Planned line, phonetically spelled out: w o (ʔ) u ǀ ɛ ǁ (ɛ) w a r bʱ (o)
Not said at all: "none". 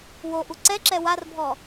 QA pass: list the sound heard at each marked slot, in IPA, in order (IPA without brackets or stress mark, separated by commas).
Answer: ʔ, ɛ, ɔ